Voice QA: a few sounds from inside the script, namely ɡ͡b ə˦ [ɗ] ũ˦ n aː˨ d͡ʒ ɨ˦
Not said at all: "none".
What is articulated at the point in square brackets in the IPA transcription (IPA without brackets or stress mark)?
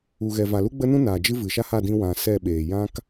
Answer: n